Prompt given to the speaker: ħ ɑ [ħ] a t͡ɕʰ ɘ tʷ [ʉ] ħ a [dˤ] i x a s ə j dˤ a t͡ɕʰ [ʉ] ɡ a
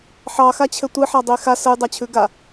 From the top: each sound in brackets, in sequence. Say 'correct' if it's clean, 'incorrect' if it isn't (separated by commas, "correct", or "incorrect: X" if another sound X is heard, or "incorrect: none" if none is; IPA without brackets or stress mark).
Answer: incorrect: x, incorrect: ɨ, correct, correct